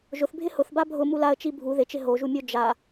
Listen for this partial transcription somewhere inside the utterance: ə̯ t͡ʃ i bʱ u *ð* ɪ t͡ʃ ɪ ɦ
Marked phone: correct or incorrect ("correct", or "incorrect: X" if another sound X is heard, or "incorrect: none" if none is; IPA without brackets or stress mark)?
correct